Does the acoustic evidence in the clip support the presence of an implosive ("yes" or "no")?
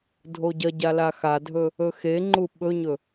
yes